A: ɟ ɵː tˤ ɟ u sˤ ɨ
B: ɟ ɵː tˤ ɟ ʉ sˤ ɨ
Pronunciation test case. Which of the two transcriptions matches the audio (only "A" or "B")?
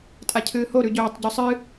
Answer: A